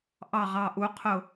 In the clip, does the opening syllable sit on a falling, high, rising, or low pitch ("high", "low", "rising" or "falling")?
falling